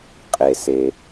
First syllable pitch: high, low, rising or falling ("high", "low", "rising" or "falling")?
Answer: low